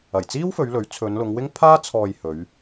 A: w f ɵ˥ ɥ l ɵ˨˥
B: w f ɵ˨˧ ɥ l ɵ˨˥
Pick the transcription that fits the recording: B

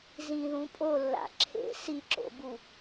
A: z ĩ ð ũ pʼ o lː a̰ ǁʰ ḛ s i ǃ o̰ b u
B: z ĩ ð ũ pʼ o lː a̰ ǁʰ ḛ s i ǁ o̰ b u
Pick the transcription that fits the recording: B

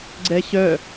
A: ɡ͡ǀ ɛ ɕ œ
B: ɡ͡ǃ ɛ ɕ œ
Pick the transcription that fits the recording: A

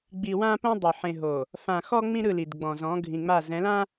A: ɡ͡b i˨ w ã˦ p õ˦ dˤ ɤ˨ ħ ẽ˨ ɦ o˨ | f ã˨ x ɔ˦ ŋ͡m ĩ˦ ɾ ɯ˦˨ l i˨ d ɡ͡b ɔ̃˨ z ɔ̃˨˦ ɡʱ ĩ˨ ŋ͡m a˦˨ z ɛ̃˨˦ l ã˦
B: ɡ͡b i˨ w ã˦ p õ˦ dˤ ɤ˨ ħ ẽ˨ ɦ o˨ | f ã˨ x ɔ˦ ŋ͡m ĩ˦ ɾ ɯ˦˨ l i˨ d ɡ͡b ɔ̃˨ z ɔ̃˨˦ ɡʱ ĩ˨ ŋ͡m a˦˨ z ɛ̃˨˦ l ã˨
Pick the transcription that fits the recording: A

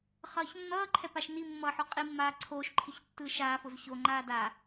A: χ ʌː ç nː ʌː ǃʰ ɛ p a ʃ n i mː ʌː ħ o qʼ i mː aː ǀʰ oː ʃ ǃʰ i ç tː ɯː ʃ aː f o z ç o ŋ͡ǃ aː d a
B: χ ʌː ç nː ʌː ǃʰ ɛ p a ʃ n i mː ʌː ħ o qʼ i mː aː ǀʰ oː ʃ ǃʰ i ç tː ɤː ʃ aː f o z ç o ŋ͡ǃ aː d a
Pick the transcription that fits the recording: A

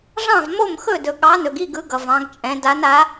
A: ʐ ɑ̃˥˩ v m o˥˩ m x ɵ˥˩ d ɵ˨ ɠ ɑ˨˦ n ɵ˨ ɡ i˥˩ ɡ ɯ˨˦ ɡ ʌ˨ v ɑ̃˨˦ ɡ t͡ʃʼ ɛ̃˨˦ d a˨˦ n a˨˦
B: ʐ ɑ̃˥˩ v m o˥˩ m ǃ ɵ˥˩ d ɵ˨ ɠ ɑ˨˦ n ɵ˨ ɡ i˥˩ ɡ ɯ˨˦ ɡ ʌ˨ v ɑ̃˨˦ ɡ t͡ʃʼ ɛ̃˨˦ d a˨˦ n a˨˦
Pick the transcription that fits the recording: A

